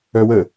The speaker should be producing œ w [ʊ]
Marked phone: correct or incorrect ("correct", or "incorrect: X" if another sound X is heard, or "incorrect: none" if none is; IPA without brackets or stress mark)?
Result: incorrect: ə